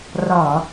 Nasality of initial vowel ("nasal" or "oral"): oral